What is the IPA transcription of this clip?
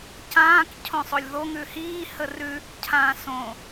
cãːk cʰõsˤolʲðo ŋʉhiː hərʉ | cʰãːsõ

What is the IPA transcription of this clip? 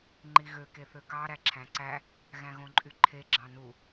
ŋ͡ǃiɣø keθøkɑ ɾæǁʰæ̃ǀæ | ɣæ̃ɣõǃʼyǃʰe ɡ͡ǁɑ̃nu

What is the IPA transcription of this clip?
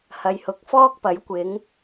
hɐ˨jhʊ˨˥k̚ fɔː˥k̚pɐ˨˥jkʷɪ˨˥ŋ

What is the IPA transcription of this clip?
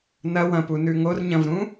nɐ wɐ̃punʉ ŋorɲɐ̃vɾũ

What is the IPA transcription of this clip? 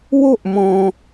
wo˥ʔmɔ̃˧

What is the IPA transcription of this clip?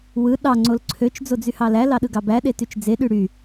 wɯ ɗɑ ŋ͡ǀolǀʰøt͡ʃ d͡zod͡zyhɑlæ lɑɗɯɡɑbæ ɗetyt͡ʃd͡ze ɗyɽy

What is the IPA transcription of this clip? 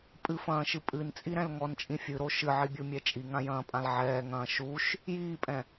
pʼɨfɐ̃ːʃɨ pʼɨnt͡sʼiɾɛ̃l ŋɔnt͡ʃʼĩ fʲɨɾo ʃɨʕibʲumʲɛ t͡ʃʼiŋãjɐ̃ːpʼãl ʕɛːŋɐ̃ː ʃuʃ | jiːpʼɛ̃

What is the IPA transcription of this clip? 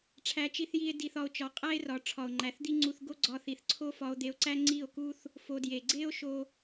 ʈ͡ʂʰæ˦t͡ʃi˦θji˦e̯ di˧θɒ˧o̯ t͡ʃɒ˨˦qʼæ˦e̯rɒ˨ ʈ͡ʂʰɒ˨o̯ŋ͡ǃæ˨θd̪i˦ ŋ͡ǀu˧θ ɡo˦ɡ͡ǀɒ˧θi˨θ ǀʰo˦fɒ˧o̯d̪e˧o̯ǀæ˦ ŋ͡ǀi˦˨o̯ku˦θ | fo˧dje˨ ɡ͡ǀe˦o̯ ʃo˦

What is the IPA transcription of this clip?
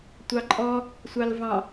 tʷɑǃʼɔ | sʷɑlvɑ̃

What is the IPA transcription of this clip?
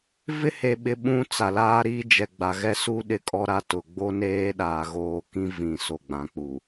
vɪ˦he˨ɓɪ˨ ɓũ˦t͡sa˨laː˦ɾiː˦ d͡ʒɛ˨ɡ͡ba˨ɣɛ˦ su˦ ɗɪ˦kʼɔ˦ɾa˦tʊ˨ ɡ͡bo˦neː˦ɗaː˨ ɣoː˨kĩ˦ vĩ˨so˨ ɡ͡bã˨k͡pu˨

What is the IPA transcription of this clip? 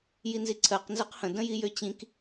jinziǀʰɜq nzɜqhə̃ də̃jijøt͡ɕĩk

